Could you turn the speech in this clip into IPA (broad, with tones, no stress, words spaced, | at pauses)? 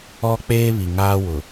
ɔ˦ k͡peː˦βi˨ŋaː˦ wʊ˨